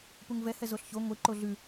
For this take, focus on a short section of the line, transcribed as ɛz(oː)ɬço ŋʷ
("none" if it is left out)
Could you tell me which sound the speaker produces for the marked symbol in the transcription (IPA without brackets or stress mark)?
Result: o